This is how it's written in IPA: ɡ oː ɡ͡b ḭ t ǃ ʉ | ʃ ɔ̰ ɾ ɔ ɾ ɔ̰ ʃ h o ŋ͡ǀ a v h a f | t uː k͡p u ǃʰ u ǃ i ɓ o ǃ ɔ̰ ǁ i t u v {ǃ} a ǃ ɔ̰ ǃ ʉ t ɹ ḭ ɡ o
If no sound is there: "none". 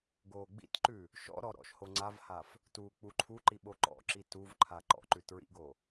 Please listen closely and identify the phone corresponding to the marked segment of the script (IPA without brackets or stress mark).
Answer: ǃʰ